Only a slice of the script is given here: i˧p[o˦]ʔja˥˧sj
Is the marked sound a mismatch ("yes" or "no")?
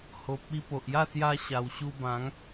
yes